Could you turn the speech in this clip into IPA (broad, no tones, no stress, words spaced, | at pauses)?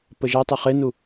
pəʒa tˤəχenu